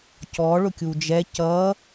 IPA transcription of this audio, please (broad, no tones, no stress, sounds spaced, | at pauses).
c ɔ ɭ ʊ kʲ u d͡ʒ ɛ c ʌ